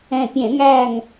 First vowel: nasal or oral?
nasal